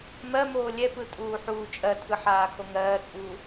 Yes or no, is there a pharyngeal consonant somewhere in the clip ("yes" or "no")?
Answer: yes